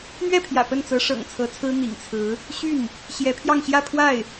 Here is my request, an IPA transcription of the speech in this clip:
n̪ɥɛ˥˩pʰjä̰˨˩ pə˥˩nt͡sɤ˧˥ʂɤ̰˨˩ŋ t͡sʰɤ˧˥t͡sʰɹ̩˥ n̪ḭ˨˩ŋt͡sʰɹ̩˧˥ | ɕy˥˩n | ɕjɛ˧˥pʰjɑ˥˧ŋ ɕjä˥˧ pʰwa˥˩ɪ̯

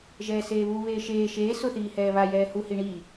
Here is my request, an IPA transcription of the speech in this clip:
ʒɛːseːβu βeːʃeː ʃeː sʊ θiːhɛːβa jɛːhu hiɳi

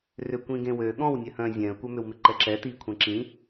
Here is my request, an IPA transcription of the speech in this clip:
rʏkʷĩɡẽwø ɠɔ̃w nʲœhœ̃ zʲɛ̃ə̯kʷœmʏwmɪ ǃɛǁɛ tikʷʰɛ̃ ǁĩ

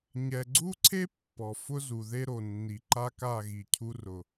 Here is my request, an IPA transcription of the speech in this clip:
ɲɛ˨ɡ͡ǀu˦ǀʰe˦ pːɔ˨ fʊ˦zu˨ ðe˦ɾo˨nːi˨ ǃa˦ka˦˨ɣi˨ cʰu˦rʊ˨

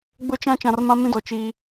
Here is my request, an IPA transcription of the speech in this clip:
ɡ͡bʊ˦t͡ʃã˦ t͡ʃã˨rmã˦mĩ˦dɔ˨ t͡ʃiː˦

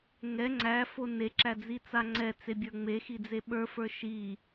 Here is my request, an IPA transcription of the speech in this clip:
ŋɛ ŋ͡ǀæfo neǁæd͡zit͡sa ŋ͡ǀɛt͡sebʲə˞ ŋ͡mexid͡ze ɓə˞fə˞ ʃi

